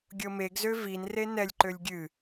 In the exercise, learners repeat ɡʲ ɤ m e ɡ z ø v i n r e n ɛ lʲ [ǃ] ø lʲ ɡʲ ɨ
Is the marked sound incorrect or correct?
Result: correct